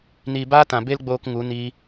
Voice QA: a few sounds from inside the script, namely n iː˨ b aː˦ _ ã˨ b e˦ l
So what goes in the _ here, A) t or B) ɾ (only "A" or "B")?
A